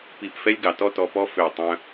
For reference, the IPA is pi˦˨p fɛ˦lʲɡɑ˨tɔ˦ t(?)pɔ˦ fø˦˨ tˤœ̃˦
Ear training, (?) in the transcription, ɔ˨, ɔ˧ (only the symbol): ɔ˧